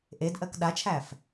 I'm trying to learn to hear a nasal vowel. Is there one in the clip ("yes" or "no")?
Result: no